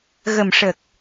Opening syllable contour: low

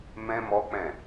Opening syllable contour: high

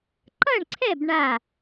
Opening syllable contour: falling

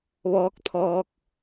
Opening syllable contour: rising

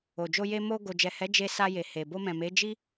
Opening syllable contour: low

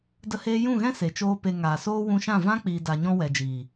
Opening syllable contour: high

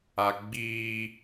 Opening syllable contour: high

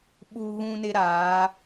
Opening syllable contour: high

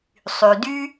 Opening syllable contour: low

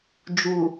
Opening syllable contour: low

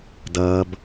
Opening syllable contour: low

